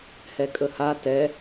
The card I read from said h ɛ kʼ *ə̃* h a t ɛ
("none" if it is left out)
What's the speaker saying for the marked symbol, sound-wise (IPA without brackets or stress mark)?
ə